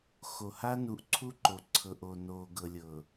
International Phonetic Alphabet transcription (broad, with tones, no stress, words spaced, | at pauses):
xo˨ ha˦nu˨˦ʔǀʰu˦ǃo˨ ǀʰɤ˨ʔo˨ no˨ ɡɤ˨lʲɤ˨